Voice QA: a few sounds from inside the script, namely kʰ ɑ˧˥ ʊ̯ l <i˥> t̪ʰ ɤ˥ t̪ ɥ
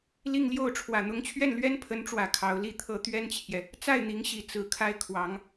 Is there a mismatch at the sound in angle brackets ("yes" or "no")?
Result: yes